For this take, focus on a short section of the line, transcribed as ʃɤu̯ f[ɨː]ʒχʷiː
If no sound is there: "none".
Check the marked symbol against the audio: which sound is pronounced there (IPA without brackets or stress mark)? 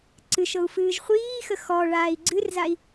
ɨː